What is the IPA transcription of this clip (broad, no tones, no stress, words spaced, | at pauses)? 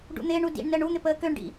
ɖṵn̪ɪːɳu dḭɳ nəːɳun̪ɪ pəːkøɳɖḭ